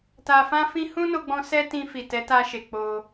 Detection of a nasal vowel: present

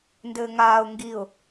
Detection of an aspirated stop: absent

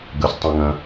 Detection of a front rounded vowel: absent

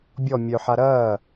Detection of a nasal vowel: absent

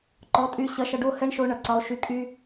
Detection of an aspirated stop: absent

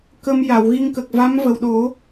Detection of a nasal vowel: absent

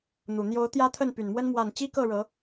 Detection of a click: absent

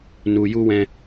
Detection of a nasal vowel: present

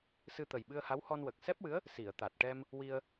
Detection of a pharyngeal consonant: absent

